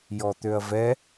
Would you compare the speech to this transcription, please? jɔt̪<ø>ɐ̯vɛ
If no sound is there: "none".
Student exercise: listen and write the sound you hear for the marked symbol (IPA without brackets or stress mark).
ø